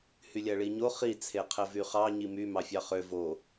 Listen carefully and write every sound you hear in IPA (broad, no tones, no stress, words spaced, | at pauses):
hylʲæɭiɲo χi t͡sʰeqʰevyχɑ ɲimy mɑfʲɑχø vo